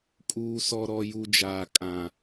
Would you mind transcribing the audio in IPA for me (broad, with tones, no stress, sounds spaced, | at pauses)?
kʼ uː˦ s ɔ˦ ɾ ɔ˦ j u˦ d͡ʒ aː˦ kʼ ã˦